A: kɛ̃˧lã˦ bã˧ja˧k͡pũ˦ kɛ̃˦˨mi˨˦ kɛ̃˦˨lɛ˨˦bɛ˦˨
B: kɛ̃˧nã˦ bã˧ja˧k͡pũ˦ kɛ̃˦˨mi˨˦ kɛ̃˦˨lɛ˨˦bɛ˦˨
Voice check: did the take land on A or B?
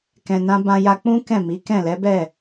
B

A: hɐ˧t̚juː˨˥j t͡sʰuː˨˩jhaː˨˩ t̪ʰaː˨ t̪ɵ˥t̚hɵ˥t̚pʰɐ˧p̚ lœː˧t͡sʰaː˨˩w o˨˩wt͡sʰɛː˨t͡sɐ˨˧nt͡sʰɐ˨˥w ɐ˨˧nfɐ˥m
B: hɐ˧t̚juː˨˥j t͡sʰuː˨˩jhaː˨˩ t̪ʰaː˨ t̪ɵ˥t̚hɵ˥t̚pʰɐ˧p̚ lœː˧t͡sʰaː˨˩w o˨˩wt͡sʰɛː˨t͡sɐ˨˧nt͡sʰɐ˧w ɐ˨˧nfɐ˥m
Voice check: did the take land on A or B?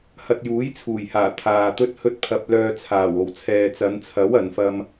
A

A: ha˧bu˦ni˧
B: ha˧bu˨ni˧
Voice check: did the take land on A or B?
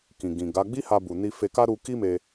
B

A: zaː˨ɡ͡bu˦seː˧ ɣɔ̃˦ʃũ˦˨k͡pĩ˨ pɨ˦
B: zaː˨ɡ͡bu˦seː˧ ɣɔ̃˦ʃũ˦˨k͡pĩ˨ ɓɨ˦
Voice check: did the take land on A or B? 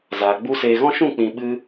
B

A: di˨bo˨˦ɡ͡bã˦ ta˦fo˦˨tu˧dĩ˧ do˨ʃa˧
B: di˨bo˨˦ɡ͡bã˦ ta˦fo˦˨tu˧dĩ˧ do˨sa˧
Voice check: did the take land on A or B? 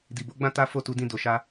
A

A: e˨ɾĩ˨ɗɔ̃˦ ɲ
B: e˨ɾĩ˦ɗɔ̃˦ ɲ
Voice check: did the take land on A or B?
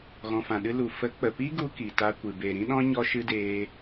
B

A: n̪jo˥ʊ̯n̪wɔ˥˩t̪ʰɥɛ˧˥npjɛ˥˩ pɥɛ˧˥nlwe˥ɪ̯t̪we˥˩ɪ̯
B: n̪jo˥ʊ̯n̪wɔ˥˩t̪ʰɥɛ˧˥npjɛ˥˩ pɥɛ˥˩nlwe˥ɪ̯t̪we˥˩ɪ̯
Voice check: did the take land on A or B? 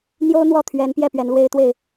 A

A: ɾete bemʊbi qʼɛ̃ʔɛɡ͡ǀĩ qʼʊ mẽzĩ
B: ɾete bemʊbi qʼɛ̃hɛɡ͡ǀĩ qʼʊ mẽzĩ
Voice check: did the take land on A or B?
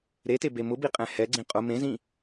B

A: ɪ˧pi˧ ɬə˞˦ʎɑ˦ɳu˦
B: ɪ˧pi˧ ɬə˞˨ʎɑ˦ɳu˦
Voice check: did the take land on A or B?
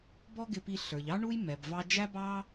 B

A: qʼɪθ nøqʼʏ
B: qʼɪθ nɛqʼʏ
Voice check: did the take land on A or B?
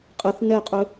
B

